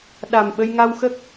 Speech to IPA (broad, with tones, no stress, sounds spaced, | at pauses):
ɗ a˨˩ m ɓ ə˧ j ŋ a˧ w x ə˦˥ k̚